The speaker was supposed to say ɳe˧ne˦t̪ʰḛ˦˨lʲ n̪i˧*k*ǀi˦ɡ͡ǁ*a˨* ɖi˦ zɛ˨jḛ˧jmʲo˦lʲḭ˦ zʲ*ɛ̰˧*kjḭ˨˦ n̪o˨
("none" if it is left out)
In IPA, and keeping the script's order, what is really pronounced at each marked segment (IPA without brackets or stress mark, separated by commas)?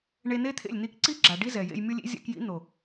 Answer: k, a˨, ɛ̰˧